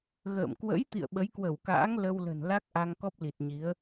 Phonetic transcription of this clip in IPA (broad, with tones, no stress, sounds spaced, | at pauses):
ɣ ə̰ː˧˨ m k w ə̰˧˥ j t̪ ḭ˧˨ ə̯ ɓ ə˨˦ j k w ə˧˩ w k a̰ː˧˥ ŋ l ə˧ w l ə̤˨˩ n l a˦˥ k̚ ʔ a˧ ŋ k ɔ˦˥ p̚ l i˨˩ t̚ ɲ i˨˦ ə̯